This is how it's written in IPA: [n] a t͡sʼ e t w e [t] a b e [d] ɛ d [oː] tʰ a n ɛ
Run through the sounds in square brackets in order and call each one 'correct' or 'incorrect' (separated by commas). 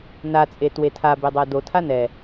correct, incorrect, incorrect, incorrect